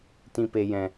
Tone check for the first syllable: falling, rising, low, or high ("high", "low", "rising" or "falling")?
low